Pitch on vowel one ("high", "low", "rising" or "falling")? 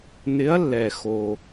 rising